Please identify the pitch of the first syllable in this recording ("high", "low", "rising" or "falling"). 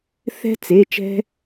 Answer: high